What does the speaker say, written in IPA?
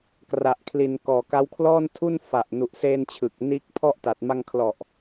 kra˨˩ʔkʰli˨˩n kɔː˨˩ka˦˥wkʰlɔː˥˩n tʰu˥˩nfa˨˩ʔ nu˨˩ʔseː˧n t͡ɕʰɯ˨˩k̚ niː˦˥k̚pʰɔ˥˩ʔta˨˩t̚ ma˧ŋkʰlɔ˨˩ʔ

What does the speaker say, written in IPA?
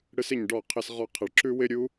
ɽɨ˦sɪ˦˨ɲɖɔ˦˨ qʰɪ˧sʁɔ˧qʰɪ˨ɭ ǁʉ˦wɪ˦ɾʲu˦

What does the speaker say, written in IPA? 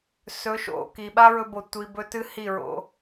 sɵ˨˦ʃo̰˨ki˨ ɓa˦ɹɵ˧bo˨ tʷi˧bɵ˦ tɨ˦hi˦˨ɹo̰˧

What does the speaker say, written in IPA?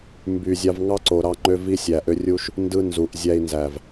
mby˨ zʲɑ˧vŋɑ˦ǀo˨ ɾɑ˧ŋ͡ǃø˧v i˧sʲæ˨ʔø˧rʲu˧ʃ | ndɯ˧ nzu˨ʔ zʲæ˧i̯ nzæ˨v

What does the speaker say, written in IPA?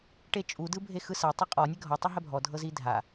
ʈet͡ʃʼu dɯbʱexɯsa tˤuqʼɔ nʲɛɡʱɔ tˤɯɦɛbʱɔ dʱɤzidʱa

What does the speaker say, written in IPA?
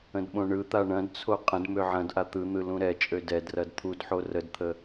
ə̃dɓõɳɯt̪a ɳɐ̃dt͡sʰo qʼə̃dmø ʕɐ̃dʔa t̪ɯn̪ɯ lũɾɛt͡ʃʼø dɛdrɐd t̪ʰudħo rədt̪ʰə

